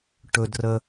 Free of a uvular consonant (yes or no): yes